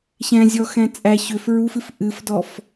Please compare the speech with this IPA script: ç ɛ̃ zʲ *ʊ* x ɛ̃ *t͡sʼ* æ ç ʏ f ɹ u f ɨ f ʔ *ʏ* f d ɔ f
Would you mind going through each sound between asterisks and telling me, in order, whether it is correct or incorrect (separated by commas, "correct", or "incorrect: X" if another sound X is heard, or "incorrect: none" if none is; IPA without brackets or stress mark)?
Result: incorrect: ɔ, correct, incorrect: ɨ